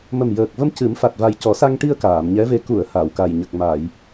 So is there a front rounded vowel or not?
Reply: no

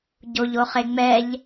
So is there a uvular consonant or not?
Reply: yes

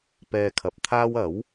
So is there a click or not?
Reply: no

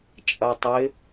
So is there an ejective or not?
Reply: yes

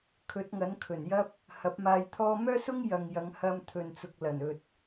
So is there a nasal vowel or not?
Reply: no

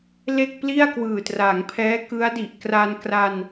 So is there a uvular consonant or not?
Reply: no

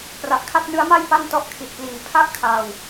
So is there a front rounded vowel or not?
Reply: no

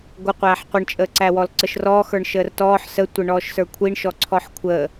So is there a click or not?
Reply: yes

